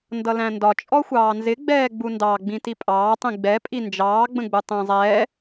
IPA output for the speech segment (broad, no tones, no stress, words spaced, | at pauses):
ndʌlæ̃ndɒ t͡ʃʼɔxʷɑːnzɪ ɡ͡bɛːɡ͡bundɑ ɡ͡bĩtipʼɑː tˤĩɡ͡bɛ pʼind͡ʒɑː ɡ͡bə̃ɡ͡butˤɛ̃ zˤɛː